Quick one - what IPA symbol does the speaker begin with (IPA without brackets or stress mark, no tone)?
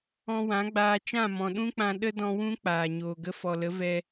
ɔ̃